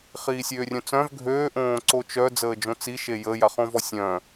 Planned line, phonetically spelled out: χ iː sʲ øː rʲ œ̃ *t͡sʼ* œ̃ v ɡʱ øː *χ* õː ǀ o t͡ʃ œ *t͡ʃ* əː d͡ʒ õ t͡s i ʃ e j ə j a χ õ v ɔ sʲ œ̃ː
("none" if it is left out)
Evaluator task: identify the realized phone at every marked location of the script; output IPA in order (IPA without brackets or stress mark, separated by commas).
t͡s, ʔ, d͡z